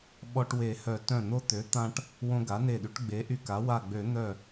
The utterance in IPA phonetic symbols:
ɓ ɔ˧ ʈ w e˨˩˦ h œ˨˩˦ t œ̃˧˩ n̪ o˧ t̪ ø˩˥ t̪ ã˧ ʈ | w õ˧ ɡ a˩˥ n e˧˩ ɗ y˩˥ ʈ ɡ͡b e˩˥ ʔ y˧ k a˩˥ w a˧˩ ɡ͡b ø˨˩˦ n̪ œ˧˩

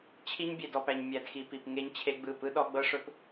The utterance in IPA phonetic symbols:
t͡ɕʰ i˦ ɲ bʲ e˨ d ɔ˨ p æ˨ ɲ mʲ æ˨ d x i˨ p i˨ p ŋ e˦ ɲ t͡ɕʰ e˦ ɡ͡b ɯ˦˨ p ɯ˦ ɗ ɔ˦ ɡ͡b ɤ˦ ʂ ɵ˦ p

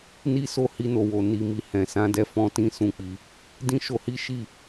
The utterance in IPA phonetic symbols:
n i˦ s o˦˨ h i˧ n o˨ w o˨ n i˨ m i˨ h ɛ̃˨ s ã˧ d ɛ˧ f ɔ̃˦ t ĩ˦ s ũ˦˨ k͡p i˧ | d ĩ˦ ʃ o˧ h i˦ ʃ i˦˨

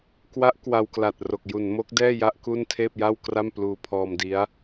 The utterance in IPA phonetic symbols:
k w a˦˥ ʔ k w a˧ w k l a˨˩ t̚ r o˨˩ k̚ j u˩˦ n m o˦˥ k̚ d ɛː˥˩ j a˥˩ ʔ k u˥˩ n tʰ eː˥˩ p̚ j a˥˩ w k r a˥˩ m p l uː˧ pʰ ɔː˧ m d i˦˥ a̯

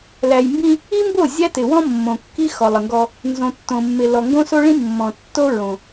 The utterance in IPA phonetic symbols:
l æ˨ j m b ĩ˦ | i˦ m b o˦˨ zʲ æ˦ t ɪ˨ w ɔ̃˦ mː õ˨ kː i˦ x ɔ˨ lˠ ə˨ ŋ ɡ ɔ˦ | n z õ˨ tː õ˨ mː ɪ˨ l ɔ˨ ŋ ɡ õ˦ s o˦ ɭ ĩ˦ mː ɔ̃˨ tː o˦ ɹ õ˦

